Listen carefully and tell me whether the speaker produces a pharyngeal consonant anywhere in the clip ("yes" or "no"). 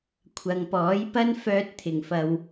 no